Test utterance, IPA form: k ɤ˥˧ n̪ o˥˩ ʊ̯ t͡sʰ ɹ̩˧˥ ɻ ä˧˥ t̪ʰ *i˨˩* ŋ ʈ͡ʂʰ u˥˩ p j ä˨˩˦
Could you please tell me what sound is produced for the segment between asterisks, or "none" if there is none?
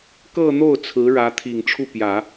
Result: i˨˩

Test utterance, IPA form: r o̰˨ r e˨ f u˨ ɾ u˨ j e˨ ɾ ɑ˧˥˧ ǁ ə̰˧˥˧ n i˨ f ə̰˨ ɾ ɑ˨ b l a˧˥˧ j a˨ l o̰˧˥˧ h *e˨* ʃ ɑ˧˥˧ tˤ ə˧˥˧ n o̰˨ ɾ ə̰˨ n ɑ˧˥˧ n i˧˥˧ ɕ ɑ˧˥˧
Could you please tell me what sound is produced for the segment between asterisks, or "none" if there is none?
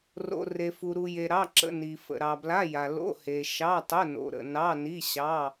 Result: e˨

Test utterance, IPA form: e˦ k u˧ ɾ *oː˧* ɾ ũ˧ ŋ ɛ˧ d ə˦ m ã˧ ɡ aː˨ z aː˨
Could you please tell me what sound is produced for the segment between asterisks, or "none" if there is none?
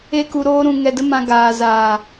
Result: oː˦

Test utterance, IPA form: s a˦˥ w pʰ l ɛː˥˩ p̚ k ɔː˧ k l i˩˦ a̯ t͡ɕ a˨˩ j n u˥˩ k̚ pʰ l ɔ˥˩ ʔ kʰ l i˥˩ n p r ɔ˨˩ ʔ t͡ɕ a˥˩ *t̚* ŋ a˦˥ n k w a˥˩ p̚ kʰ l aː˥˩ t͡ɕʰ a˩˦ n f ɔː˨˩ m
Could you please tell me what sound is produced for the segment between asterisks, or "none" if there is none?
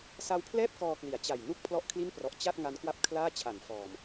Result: t̚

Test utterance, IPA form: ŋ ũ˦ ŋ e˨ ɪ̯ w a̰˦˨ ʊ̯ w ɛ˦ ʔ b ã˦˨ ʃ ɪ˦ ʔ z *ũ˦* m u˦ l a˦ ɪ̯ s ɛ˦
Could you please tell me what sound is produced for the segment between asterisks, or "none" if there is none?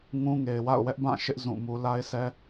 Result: ũ˦˨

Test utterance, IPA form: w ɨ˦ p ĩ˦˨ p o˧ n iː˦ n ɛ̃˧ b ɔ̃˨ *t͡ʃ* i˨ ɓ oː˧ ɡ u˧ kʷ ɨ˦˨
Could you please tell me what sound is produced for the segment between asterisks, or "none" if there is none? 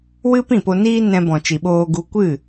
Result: t͡ʃ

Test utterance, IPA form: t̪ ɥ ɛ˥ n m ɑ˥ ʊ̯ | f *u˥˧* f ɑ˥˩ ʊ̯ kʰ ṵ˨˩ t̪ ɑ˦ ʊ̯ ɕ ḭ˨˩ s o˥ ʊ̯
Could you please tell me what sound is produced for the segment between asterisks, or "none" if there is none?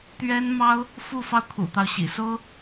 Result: u˥˧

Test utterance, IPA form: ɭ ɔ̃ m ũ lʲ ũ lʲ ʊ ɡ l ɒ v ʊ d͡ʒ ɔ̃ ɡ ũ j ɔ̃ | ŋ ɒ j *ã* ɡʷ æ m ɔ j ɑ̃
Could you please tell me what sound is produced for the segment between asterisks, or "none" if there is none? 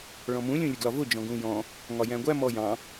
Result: æ̃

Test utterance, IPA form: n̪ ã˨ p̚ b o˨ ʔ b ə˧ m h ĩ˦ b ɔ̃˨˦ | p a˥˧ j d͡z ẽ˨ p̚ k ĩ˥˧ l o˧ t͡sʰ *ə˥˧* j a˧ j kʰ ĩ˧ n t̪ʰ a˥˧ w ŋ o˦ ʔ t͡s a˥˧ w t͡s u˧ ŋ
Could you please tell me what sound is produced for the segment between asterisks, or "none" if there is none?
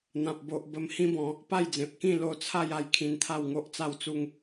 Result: a˥˧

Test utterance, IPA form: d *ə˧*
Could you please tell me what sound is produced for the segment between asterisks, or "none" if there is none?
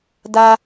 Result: a˧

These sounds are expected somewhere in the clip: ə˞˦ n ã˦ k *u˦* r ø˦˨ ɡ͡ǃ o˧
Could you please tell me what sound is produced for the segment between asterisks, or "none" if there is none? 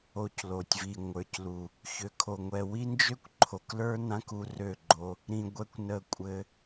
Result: u˧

